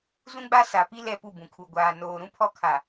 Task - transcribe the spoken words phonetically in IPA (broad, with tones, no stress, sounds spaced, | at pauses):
z ũ˦ ɡ͡b a˦ s a˨ p i˦ l ɛ˦˨ p u˦˨ b ũ˨ kʰ u˨ ɡʷ aː˨ n oː˨ ɾ ũ˦ pʰ ɔ˦˨ kʰ a˨